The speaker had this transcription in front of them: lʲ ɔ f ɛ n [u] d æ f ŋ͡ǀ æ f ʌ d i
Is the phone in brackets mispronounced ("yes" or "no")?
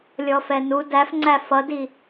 no